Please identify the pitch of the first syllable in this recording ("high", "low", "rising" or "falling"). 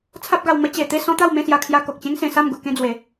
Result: high